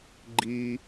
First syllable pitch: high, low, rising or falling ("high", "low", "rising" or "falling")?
high